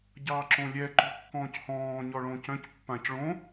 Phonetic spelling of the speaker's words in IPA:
ɟ ɑː ǁ õ lʲ ɛ ǃ o̤ kː ɔ̃ː c h ɔ̃ː ɲ ɔ ɭ õ c œ̃ c pː ã c ɭ õ

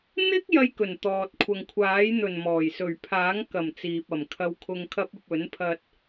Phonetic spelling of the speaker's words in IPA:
n̪ ɪ˥ k̚ j ɐ˥ j k ɵ˨˩ n t̪ ɔː˨ t̚ kʷʰ ɐ˨ ŋ kʷʰ aː˨˥ j n̪ ɵ˨˩ n m ɔː˨˩ j s ɵ˨˩ ɥ pʰ aː˨˥ ŋ k ɐ˨˩ m t͡s iː˨ p̚ ɐ˨˩ m kʰ ɐ˧ w kʰ ʊ˧ ŋ kʰ ɐ˥ p̚ ɐ˧ p̚ ɵ˨˥ n pʰ ɐ˧ t̚

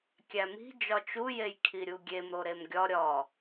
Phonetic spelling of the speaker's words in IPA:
kʲ æ m i̤ d͡ʒ ɒ t͡ʃ u j e j kʰ i ɾʲ u ɡʲ e m ɾ o ɾ e m ɡʲ ɒ ɾʲ ɒ

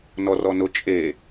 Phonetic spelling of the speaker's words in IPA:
n ɔ r ɔ n ʊ t͡ʃʼ e

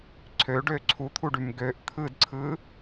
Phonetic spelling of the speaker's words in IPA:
ǀʰ ø ɖ ø ǀʰ u t̪ʰ u ɖ y m ɡ ø ʔ t̪ʰ ɯ d ǀʰ ɯ

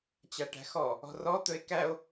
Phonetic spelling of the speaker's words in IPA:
t͡ɕ a ʈ æ̤ x ɔ | ɔ̤ r ɔ t̪ ɵ e̯ k æ o̯

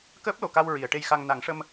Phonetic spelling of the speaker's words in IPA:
k əː˦˥ p̚ l o˨˩˨ k a˧ w ɹ i˨˩˨ ə̯ ʈ e˧ j x a˧ ŋ n a˨˩˦ ŋ ʂ ə˧ m

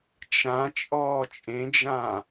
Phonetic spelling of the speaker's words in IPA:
t͡ʃ ã t͡ʃʼ ɔː t͡ʃʼ ẽ d͡ʒ ã

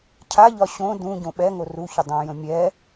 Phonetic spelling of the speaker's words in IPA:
cʰ a ʎ ɒ ɕ õ d ũ ɟ õ ɓ ɛ ŋ o r u ç ʏ dˤ ɛ̃ j ə̃ mʲ ɛ

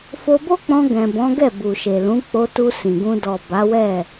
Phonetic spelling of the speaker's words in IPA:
f o˧ b o˦ k͡p ɔ̃˧ ɡ ɛ̃˨ b ɔ̃˨˦ ɡ ɛ˦˨ b u˨ ʃ e˨ l ũ˨˦ k͡p o˧ t u˧ s ĩ˨ ɡ ũ˧ d ɔ˨ b a˨˦ w ɛ˦˨

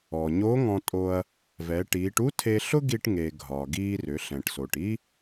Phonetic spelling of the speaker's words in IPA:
ɔ˩ ɲ o˧˥ ŋ ɔ̃˧ tʼ o˧ ɐ̯ | v ɛ˩˧ ʈ iː˩˧ ʈ u˥ tʰ e˧ ɬ ʊ˥ ɡ i˧ ʈ ŋ e˩ ɡʱ ɒ˩ ɡ iː˧ r ʏ˩˧ ɬ ɛ̃˩ ʈ s o˩ ʈ i˥

